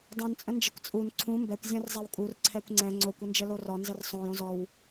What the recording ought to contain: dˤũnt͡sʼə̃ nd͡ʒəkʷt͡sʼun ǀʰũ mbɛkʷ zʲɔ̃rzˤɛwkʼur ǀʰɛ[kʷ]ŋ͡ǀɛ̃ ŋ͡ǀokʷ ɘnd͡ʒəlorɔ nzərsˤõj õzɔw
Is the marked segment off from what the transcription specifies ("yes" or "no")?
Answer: no